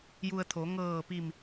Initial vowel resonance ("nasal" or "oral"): oral